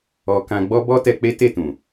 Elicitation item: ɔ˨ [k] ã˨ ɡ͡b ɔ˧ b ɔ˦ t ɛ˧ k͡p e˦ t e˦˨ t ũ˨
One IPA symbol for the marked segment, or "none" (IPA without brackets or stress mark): k